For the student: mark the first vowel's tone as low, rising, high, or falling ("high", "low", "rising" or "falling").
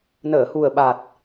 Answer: low